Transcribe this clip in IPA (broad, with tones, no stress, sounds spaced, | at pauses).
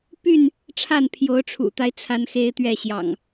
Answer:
p y˥˨ n | ʈ͡ʂʰ a˥˨ n pʰ j o˨˦ ʊ̯ ʈ͡ʂʰ ṵ˨˩ t̪ a˦ ɪ̯ t͡sʰ a˦ n x e˦ ɪ̯ t̪ ɥ ɛ˥˨ ɕ j ɑ̰˨˩ ŋ